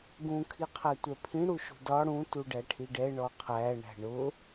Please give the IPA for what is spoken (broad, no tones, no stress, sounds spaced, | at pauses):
ɡ ũ kʰ i qʰ æ tʷ ɛ pʰ ĩ ɽ u ʃ ṳ d ɒ ɽ ũ t u ɖ æ ʈʰ i ɖ ɛ ɳ ɔ qʰ æ ɳ æ̤ ɳ ʊ